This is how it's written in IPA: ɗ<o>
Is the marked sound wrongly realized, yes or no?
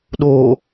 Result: no